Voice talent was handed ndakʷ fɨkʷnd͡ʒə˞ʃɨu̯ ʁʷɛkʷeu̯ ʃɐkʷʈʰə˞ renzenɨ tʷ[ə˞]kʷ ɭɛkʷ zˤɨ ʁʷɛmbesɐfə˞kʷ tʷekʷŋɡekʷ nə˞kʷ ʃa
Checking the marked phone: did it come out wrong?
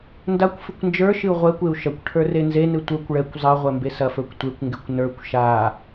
no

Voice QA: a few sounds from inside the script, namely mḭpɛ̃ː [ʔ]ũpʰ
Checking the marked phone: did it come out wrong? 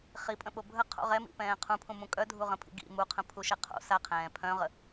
yes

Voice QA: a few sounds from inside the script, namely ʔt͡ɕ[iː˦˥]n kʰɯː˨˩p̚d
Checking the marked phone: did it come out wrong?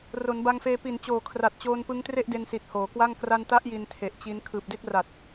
yes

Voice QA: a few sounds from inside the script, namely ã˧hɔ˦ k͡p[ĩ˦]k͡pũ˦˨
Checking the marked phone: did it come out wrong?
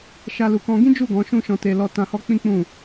no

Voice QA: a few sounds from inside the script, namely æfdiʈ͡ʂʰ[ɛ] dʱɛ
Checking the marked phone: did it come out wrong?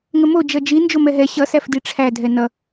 yes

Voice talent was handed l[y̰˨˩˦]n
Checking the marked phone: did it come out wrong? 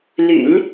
no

